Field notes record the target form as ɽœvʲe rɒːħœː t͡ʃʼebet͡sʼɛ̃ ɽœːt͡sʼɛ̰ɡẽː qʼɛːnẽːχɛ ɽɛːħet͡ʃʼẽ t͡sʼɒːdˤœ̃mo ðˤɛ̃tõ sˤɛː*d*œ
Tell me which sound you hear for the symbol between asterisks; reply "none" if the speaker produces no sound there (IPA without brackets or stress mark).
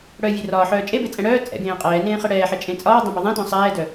d